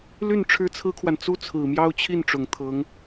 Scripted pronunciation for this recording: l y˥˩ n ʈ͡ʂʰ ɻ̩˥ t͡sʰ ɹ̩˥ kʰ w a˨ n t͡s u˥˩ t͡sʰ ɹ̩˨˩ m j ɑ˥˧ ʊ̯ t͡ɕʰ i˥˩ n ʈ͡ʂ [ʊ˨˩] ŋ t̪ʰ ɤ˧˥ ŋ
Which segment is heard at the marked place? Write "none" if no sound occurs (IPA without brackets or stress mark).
ʊ˨˩